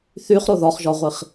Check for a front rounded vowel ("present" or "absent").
present